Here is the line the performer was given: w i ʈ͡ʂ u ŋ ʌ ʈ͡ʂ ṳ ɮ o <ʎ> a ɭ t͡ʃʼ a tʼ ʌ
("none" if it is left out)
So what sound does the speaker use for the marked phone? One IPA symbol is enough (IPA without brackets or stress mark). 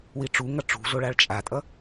ɭ